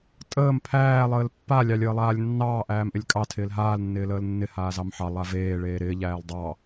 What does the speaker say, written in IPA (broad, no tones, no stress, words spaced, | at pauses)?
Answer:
tʼəːm pʰæː lˠəːlpːa lʲɑlʲəːlˠaːlʲnːɑː ʔæːmʔɪlʲkʼɑ tʰɪːlɦaːl nːɪːləːlnːɪ haːzɑmħɑ lˠaveː ɭeːɾɪː ʎæːldˤɑ